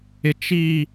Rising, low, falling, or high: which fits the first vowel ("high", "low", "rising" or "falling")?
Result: low